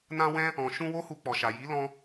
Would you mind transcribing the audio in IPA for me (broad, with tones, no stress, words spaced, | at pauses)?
nã˦wɛ̃˦ | ɔ̃˨ ʃũ˧ wo˦hu˧k͡pɔ˨ʃa˨ ji˨˦ lɔ̃˦